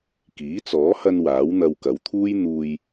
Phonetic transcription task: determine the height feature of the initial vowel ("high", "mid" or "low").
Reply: high